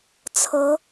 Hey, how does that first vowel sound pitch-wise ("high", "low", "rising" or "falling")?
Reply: rising